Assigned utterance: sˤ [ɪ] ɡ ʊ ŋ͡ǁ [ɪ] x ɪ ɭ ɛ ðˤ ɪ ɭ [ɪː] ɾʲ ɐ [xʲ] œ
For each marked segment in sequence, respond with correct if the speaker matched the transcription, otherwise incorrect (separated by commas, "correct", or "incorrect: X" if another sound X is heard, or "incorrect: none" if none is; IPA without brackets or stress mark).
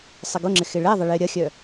correct, correct, correct, correct